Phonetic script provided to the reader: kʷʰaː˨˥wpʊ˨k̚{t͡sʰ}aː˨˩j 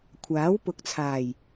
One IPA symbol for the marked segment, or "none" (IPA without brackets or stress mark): t͡sʰ